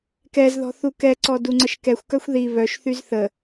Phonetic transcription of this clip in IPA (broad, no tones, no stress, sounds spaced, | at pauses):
k ɛ z ð ɔ̤ θ u k ɛ ǀ ɔ d u ŋ͡ǀ ə ʃ k ɛ xʷ k œ xʷ ð i β œ ʃ θ y z θ ə